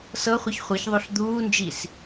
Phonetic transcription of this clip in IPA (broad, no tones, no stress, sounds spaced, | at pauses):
s ɤ χʷ ə ç χʷ ɤ ç ðˤ o ɬ d̪ uː n d͡ʒ i s